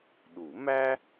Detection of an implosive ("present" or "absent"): present